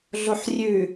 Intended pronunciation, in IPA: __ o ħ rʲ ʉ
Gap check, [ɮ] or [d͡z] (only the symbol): ɮ